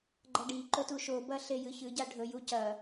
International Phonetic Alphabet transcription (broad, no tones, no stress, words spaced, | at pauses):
ɡ͡ǃɐɖiǃɵ tuʃobɐ ɬejɨçɨɟa ɖʱɵju cɐ